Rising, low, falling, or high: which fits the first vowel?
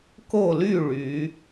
falling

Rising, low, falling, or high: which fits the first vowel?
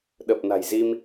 low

